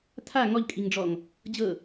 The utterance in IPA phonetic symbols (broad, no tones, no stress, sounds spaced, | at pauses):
tʰ a ŋ ɔ ʎ kʼ i ŋ ɖ͡ʐ ɔ ŋ | d͡ʑ ɤ